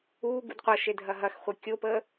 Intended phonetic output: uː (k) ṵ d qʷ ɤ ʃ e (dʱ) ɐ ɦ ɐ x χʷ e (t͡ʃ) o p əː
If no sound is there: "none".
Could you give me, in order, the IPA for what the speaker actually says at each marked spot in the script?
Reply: ɡ, dʱ, kʲ

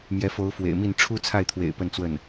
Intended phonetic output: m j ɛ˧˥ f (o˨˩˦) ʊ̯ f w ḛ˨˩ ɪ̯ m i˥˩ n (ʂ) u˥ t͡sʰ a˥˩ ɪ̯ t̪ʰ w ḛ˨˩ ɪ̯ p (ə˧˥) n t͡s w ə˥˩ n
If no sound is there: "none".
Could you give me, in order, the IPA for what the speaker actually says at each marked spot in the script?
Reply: o˧˥, ʈ͡ʂʰ, ə˥˧

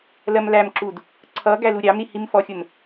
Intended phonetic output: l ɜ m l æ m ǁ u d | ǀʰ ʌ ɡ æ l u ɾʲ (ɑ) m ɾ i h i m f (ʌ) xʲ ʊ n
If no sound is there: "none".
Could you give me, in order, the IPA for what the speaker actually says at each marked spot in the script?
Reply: ɑ, ɔ

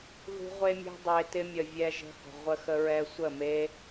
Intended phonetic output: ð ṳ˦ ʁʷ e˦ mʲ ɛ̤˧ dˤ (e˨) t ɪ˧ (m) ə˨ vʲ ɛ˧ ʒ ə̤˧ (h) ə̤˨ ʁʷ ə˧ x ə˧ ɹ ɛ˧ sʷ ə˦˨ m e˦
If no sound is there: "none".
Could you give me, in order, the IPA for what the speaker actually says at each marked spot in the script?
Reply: e˨, mʲ, h

